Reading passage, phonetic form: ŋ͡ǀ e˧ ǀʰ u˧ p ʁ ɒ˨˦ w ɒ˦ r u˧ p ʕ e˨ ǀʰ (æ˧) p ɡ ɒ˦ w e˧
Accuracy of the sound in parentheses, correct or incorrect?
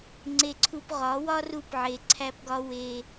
incorrect